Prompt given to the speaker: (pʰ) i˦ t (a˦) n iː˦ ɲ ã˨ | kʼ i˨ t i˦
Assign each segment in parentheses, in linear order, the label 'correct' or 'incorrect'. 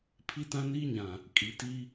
correct, incorrect

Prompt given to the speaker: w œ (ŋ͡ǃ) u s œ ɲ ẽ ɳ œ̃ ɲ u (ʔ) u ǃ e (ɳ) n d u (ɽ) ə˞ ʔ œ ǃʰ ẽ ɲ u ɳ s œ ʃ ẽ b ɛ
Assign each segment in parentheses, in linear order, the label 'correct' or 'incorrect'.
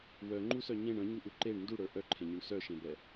correct, correct, correct, correct

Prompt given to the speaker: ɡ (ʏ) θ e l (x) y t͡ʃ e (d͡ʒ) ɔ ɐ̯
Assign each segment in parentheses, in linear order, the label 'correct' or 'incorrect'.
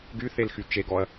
incorrect, correct, incorrect

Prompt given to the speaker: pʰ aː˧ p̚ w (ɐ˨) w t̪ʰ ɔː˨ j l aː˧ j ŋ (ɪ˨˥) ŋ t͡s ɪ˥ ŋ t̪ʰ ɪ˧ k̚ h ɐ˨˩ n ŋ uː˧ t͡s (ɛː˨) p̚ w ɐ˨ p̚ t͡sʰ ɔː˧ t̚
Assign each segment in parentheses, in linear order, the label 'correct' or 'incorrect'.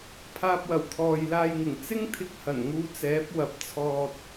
incorrect, incorrect, incorrect

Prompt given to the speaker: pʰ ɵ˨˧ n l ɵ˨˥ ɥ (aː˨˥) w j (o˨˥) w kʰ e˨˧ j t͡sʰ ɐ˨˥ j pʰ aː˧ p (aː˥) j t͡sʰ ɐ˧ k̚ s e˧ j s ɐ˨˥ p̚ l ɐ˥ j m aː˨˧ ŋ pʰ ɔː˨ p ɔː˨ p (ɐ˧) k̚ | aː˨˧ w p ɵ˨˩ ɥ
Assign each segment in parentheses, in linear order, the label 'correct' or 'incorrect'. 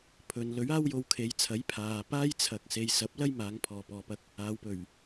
incorrect, incorrect, correct, correct

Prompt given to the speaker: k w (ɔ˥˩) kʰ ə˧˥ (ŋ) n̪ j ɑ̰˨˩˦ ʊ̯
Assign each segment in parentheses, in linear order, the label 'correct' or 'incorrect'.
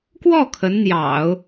correct, incorrect

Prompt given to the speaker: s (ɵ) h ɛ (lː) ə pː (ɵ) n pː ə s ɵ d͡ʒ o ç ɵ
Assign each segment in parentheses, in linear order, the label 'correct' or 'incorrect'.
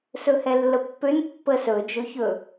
correct, correct, incorrect

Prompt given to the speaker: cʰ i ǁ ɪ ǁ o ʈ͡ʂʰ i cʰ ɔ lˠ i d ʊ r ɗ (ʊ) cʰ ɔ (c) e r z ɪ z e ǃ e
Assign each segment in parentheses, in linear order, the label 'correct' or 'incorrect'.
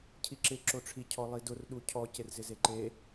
incorrect, correct

